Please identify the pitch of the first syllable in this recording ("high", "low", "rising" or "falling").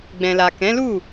low